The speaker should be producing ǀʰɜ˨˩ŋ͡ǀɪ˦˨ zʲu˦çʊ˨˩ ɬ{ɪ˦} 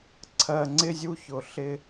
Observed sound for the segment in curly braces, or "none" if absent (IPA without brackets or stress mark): ɪ˦